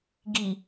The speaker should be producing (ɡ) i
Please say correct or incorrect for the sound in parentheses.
correct